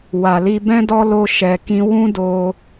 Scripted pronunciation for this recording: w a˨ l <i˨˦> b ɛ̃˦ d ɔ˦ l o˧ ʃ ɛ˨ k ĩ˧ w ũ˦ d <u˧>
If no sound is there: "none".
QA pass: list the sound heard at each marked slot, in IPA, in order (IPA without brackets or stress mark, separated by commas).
i˧, o˧